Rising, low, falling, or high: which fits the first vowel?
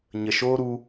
low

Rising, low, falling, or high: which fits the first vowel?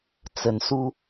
rising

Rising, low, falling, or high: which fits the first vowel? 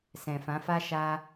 low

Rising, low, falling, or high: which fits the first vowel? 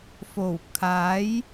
low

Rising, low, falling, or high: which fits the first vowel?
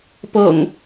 low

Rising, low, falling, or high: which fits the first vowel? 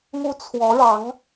high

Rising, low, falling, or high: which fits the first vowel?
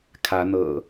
rising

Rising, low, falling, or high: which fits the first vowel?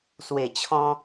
low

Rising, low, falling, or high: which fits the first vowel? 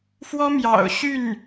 high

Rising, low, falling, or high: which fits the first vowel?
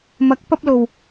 rising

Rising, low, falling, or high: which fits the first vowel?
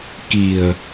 low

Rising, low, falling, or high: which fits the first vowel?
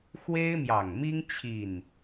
high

